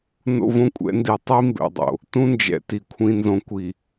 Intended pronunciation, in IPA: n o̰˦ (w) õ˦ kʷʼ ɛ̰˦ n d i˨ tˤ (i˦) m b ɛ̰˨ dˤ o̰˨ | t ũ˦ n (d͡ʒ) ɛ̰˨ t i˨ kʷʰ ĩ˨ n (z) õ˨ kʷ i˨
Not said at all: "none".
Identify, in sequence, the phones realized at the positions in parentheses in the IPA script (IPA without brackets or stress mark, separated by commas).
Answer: v, i˦, d͡ʒ, z